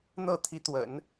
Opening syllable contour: falling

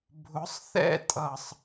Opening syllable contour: rising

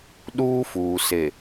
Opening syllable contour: high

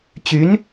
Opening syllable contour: rising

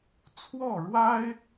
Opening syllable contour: falling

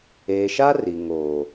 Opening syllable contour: low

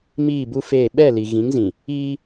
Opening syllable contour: falling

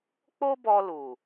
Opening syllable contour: high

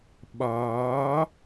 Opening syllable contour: rising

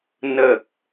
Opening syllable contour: low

